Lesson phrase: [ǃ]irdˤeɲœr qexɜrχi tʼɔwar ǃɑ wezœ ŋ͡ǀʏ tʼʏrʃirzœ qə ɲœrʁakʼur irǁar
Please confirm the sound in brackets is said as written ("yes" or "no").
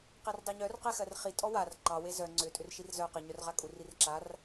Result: no